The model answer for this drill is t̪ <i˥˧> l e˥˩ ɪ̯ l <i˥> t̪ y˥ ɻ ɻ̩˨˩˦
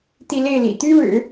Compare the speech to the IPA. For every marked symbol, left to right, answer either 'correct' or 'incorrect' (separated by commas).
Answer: correct, incorrect